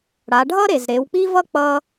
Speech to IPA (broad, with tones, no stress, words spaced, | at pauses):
ɽa˩˧ɖʱʌ˥ɾe˩z ɾe˩˧wk͡pi˥vʌ˥ k͡pʌ˧